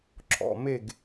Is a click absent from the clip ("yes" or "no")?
no